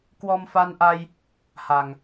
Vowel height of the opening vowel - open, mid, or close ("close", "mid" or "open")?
mid